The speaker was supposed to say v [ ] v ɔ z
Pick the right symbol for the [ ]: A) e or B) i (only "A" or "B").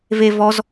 A